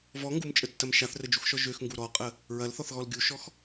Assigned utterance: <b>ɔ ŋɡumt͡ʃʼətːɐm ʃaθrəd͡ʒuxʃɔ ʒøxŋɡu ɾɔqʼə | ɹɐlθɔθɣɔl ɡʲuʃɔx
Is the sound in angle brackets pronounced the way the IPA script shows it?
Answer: no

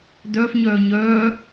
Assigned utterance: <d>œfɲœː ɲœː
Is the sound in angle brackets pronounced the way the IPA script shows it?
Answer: yes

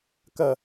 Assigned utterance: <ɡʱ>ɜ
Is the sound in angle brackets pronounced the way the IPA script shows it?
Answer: no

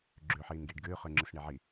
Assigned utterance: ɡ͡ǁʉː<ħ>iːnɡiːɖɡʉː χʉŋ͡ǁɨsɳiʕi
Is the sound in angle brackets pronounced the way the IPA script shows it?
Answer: yes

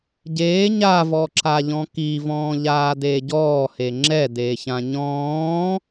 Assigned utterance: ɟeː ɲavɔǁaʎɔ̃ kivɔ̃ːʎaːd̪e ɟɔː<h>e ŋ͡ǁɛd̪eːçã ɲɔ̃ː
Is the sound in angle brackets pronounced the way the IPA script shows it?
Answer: yes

